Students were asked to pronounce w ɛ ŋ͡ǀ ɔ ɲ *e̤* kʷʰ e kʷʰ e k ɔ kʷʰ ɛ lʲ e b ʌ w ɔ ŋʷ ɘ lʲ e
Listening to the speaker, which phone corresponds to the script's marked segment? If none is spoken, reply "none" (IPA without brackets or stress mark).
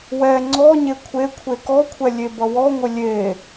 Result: e